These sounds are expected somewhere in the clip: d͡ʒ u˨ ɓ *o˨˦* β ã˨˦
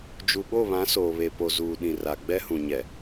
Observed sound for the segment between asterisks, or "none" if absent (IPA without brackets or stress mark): o˦˨